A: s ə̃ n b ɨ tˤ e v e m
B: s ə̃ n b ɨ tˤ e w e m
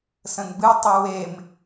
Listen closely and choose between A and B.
B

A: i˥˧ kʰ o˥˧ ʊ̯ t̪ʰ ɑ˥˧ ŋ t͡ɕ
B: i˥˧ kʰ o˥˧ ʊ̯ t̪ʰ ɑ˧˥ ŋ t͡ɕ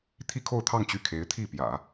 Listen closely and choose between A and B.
A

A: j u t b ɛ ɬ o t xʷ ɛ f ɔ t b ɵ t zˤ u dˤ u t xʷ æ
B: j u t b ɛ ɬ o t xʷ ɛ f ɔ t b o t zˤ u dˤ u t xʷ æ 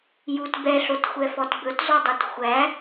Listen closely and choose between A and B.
A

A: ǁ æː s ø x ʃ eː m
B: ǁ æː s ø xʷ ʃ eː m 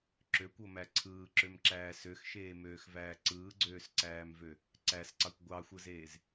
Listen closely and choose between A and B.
A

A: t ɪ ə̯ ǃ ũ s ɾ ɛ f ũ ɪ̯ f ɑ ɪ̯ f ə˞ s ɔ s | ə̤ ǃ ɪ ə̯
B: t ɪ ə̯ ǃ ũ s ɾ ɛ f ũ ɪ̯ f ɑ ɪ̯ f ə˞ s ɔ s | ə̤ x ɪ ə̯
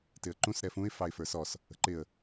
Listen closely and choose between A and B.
A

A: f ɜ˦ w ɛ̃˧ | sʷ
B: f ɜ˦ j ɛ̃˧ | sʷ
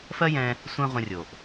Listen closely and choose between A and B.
B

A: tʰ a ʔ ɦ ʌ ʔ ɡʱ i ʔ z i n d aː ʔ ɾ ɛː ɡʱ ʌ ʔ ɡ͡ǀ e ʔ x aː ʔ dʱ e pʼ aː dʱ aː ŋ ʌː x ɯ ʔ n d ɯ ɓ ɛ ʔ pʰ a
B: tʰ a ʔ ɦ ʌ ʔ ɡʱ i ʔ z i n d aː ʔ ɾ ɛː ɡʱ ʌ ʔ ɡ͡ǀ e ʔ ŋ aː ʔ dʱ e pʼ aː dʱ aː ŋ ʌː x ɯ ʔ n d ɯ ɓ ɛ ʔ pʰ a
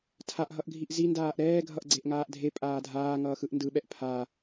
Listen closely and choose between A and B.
B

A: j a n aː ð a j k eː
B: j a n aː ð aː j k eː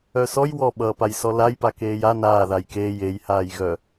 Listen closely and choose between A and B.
A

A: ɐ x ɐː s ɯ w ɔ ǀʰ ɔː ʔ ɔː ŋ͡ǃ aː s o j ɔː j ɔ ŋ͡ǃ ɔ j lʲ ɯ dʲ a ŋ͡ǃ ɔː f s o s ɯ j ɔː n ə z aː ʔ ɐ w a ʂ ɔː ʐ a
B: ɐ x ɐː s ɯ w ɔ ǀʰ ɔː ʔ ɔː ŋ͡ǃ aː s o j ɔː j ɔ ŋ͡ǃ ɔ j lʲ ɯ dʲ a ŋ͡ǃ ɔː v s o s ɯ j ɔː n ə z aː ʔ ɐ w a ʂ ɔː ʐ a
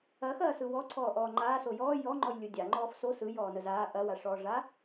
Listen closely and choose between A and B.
A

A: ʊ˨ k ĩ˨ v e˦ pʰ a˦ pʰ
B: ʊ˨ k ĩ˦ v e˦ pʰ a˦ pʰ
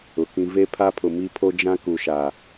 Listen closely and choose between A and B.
B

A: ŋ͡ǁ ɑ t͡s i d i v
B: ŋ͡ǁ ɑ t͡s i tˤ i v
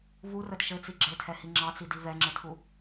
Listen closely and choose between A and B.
A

